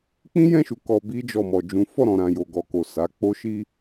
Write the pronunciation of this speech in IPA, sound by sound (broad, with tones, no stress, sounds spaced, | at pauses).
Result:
k͡p ĩ˦ j ɛ̃˦˨ ʃ u˨ k ɔ˧ b i˦ d͡ʒ ɔ˦˨ m ɔ˧ d͡ʒ ũ˦ f ɔ˦˨ ɾ ɔ̃˨ ɾ ã˨ j o˨ ɡ ɔ˨ k o˨ s a˨˦ k͡p o˦ ʃ i˦